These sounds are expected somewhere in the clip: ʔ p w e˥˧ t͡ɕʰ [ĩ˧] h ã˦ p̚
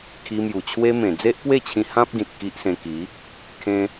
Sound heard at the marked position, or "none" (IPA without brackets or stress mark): ĩ˧